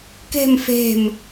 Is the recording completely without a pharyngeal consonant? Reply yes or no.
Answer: yes